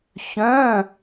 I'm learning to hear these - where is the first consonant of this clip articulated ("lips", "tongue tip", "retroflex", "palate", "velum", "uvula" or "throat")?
palate